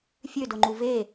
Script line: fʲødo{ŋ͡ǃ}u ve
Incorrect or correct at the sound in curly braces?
correct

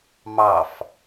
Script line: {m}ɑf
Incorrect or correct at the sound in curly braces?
correct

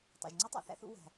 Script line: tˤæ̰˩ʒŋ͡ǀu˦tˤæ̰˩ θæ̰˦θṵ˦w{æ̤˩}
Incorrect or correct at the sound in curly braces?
correct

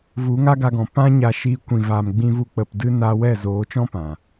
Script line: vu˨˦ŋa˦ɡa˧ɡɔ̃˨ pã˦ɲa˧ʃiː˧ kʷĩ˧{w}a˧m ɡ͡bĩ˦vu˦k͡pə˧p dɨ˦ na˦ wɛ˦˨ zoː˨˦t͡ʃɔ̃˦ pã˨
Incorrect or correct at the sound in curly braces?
incorrect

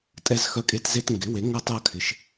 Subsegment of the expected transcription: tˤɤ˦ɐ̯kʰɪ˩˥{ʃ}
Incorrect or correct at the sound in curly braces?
correct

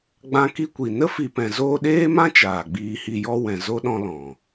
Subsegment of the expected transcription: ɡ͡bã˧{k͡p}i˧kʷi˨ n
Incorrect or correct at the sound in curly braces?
incorrect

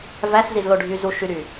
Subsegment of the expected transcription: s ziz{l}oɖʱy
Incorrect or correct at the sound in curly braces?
correct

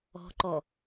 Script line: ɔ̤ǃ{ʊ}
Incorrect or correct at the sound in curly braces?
incorrect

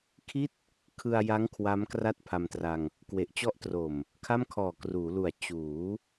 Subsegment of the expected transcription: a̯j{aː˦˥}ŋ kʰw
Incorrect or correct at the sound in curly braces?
incorrect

